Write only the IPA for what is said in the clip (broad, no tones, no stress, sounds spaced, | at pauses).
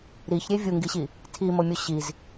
ɾ i ç ɾʲ e vʲ u ŋ ɡ i ɕ i | tʰ i m o mʲ o ɕ i z